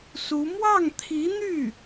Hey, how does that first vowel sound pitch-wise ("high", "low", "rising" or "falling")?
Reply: rising